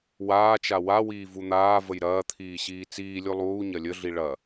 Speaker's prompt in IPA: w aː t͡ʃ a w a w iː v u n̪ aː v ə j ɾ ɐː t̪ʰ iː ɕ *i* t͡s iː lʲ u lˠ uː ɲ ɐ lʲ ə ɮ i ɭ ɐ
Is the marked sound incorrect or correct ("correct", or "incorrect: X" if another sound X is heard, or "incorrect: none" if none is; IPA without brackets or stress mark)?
incorrect: iː